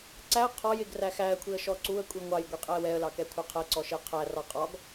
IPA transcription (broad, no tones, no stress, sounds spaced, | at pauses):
ǀ æ ə̯ qʰ ɔ j ɪ ɡ r æ x æ ə̯ kʷʰ i ə̯ ʃ ɔ ǀ u ə̯ kʷʼ i ŋʷ ɑ j ɡʷ i qʼ ɛ ə̯ w ɛ ə̯ l ɑ k ɛ kʷʰ ɑ qʰ ɛ ǀ ɔ ʃ ɪ ə̯ qʰ æ r ɑ qʼ ɒ ɡ